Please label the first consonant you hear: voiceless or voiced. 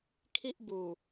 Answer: voiceless